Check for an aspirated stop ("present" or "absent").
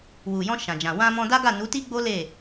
absent